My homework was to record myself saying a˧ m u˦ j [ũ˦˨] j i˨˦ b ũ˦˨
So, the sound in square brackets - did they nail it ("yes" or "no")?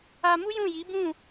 yes